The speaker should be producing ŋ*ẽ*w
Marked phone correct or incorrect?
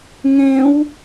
correct